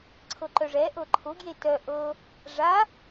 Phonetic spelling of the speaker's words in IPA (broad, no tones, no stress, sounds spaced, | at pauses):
ǀʰ ɤ ǃ œ ʐ ɛ ʔ ɤ ǃʰ ʊ ɡ j e t œ ʔ ɤ | ʐ a